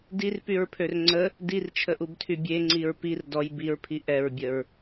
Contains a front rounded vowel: yes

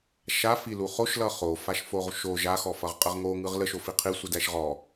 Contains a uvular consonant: yes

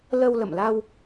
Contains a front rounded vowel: no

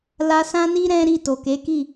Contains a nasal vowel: yes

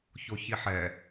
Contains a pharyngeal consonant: yes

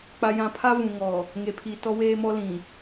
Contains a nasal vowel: yes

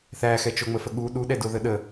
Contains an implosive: yes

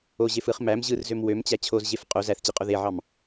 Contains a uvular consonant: yes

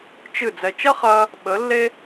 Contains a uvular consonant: yes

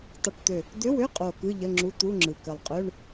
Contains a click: yes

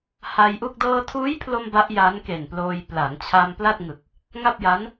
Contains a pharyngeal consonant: no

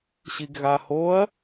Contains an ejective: no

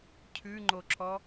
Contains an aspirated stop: yes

